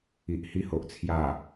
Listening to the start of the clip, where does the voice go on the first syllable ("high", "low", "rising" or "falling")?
low